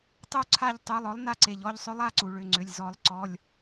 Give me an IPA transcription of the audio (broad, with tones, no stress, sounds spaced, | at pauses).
tˤ u˦˨ ǀʰ a˦˨ ʎ tˤ u˩˧˩ lˠ ɔ˩˥ lˠ n a˦˨ ǀ e˩ ʎ ɔ˦˨ ʎ sˤ ʏ˧˥ lˠ a˩˧˩ ǀ u˩ ɭ ʏ˩˧˩ ŋ͡ǀ ʏ˩˧˩ lʲ z ɔ˨˩˦ lˠ ǀ ɔ˩˧˩ lʲ